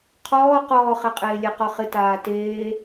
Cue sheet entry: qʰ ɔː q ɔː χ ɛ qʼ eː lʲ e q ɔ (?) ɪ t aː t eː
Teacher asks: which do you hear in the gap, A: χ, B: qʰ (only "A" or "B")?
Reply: A